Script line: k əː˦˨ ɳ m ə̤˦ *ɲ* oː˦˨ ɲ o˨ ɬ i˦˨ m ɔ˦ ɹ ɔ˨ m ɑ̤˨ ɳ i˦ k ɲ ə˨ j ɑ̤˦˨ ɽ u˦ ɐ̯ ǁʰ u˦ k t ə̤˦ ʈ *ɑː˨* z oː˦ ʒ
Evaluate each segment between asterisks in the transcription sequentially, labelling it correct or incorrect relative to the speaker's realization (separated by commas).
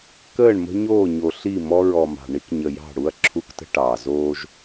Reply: correct, correct